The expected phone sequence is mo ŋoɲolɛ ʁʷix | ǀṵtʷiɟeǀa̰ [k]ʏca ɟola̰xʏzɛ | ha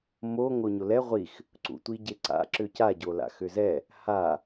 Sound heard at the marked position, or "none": ǁ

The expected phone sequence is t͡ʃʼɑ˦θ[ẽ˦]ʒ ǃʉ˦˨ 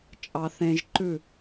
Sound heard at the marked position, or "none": ẽ˦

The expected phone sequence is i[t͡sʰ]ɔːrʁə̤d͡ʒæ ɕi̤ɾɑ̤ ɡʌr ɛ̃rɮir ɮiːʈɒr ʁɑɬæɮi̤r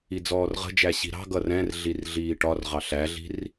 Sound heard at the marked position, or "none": d͡z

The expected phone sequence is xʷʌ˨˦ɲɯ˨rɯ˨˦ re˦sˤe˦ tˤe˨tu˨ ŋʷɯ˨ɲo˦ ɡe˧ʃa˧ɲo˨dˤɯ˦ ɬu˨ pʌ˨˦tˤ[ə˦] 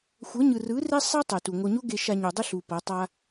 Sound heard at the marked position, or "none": a˦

